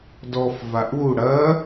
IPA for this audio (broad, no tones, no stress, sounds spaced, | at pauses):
d ɔ f v a ʔ u ɽ ɐ